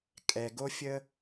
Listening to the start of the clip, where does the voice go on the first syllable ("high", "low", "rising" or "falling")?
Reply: low